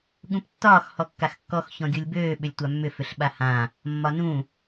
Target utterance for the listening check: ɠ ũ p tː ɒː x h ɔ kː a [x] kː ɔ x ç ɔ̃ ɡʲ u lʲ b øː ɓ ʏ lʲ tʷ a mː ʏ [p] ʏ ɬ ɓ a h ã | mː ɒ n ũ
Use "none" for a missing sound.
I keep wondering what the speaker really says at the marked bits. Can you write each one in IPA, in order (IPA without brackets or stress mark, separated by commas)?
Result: x, f